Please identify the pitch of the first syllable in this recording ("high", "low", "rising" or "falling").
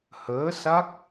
rising